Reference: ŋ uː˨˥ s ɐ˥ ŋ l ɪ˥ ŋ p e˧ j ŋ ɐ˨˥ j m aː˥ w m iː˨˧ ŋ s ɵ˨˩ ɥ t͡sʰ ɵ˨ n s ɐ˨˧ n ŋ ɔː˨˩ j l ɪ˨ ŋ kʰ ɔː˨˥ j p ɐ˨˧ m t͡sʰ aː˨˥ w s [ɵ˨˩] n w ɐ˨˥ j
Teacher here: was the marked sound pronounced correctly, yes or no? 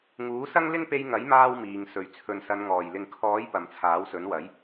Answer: no